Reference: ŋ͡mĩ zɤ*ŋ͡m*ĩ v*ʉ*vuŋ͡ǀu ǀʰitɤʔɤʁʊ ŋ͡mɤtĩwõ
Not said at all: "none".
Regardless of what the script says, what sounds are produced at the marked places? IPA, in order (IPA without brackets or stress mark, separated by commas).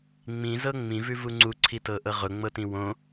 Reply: ŋ͡m, ʉ